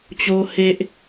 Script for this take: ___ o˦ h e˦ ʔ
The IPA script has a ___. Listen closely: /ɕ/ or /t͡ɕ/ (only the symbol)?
t͡ɕ